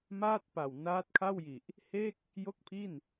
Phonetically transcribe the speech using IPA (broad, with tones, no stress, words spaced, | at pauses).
maː˥˩t̚pa˨˩w naː˦˥t̚kʰa˥˩wji˨˩ʔ | he˥˩k̚ | jo˥˩k̚pʰi˥˩n